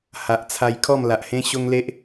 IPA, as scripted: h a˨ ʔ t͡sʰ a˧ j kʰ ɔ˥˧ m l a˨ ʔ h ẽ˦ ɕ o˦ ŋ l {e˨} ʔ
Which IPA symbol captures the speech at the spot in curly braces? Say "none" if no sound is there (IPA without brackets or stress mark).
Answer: e˦